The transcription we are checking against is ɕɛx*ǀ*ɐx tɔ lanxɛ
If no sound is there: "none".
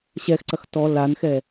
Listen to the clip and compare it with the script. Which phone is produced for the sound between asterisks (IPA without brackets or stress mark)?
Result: ǀ